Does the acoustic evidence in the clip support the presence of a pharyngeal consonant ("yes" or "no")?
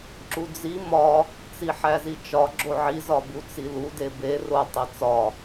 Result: yes